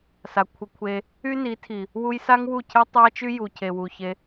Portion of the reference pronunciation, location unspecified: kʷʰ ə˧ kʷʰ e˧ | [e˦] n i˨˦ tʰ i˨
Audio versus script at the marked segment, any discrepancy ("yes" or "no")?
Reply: yes